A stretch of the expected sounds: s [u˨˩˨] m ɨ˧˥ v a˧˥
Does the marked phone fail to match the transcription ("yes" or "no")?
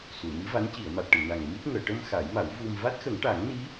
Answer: no